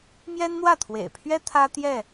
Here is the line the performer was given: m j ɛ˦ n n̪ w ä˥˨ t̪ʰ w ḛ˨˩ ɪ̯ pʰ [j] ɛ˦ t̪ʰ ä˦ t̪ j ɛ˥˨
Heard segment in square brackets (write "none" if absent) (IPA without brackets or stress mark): ɥ